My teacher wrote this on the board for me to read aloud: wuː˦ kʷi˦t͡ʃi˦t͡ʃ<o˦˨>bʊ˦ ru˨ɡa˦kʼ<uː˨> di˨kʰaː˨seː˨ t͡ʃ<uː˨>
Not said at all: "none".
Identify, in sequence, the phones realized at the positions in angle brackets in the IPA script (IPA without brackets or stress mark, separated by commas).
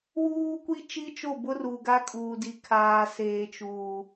o˦˨, uː˨, uː˨